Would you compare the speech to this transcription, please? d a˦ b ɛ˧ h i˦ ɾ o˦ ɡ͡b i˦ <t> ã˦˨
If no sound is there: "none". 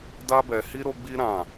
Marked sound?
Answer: ɾ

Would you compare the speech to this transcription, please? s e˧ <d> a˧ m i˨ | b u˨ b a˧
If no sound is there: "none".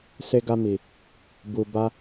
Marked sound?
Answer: ɡ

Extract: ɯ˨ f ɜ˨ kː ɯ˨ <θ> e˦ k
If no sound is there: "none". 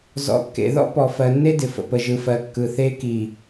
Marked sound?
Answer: θ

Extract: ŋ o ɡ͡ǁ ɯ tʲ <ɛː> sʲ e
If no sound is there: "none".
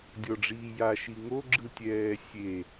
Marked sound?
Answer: ɛː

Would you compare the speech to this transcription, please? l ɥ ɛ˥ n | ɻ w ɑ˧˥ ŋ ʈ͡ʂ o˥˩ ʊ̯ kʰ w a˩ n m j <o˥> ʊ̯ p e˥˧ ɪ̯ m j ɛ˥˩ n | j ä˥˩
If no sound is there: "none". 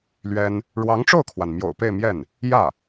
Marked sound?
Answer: o̰˨˩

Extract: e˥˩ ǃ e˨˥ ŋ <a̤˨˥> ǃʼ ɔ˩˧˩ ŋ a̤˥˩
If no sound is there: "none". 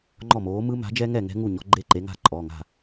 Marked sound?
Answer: a̤˥˩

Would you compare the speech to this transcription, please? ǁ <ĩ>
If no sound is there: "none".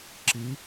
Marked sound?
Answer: i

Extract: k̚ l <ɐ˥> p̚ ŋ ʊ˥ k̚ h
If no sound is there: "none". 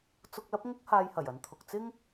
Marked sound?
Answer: ɐ˥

